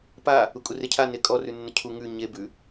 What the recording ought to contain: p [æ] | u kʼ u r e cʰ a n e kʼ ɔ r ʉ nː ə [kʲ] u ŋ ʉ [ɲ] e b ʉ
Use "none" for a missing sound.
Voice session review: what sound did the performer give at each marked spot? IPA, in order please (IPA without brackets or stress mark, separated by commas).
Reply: a, cʰ, ɲ